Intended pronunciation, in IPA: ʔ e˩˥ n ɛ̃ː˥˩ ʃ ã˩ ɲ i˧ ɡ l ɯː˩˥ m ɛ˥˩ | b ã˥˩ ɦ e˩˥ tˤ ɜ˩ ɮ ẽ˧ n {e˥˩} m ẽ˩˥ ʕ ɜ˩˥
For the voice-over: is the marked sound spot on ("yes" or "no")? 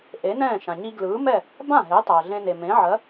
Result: no